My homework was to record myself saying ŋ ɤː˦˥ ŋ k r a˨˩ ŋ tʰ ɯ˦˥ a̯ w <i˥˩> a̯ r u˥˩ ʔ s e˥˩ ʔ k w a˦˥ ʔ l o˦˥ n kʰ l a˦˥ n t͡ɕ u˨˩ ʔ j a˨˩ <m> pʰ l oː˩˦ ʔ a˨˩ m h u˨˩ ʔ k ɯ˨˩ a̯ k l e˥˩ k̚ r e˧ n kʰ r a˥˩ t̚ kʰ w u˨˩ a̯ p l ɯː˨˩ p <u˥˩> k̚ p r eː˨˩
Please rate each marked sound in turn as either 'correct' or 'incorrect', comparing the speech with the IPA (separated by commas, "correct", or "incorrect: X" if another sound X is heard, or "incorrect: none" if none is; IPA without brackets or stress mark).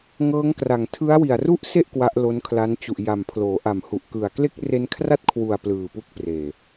incorrect: i˨˩, correct, incorrect: u˦˥